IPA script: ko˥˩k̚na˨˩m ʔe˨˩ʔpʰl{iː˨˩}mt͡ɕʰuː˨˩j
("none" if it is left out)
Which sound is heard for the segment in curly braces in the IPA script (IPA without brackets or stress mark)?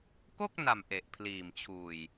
iː˨˩